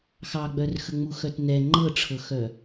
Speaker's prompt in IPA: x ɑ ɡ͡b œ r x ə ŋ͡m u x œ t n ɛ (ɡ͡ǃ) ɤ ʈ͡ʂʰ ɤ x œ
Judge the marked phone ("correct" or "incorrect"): incorrect